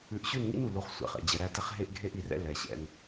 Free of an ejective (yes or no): yes